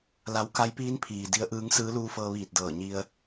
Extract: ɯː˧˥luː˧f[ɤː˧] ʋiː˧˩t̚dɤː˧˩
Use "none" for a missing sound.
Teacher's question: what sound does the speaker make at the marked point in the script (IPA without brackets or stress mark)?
ɤː˧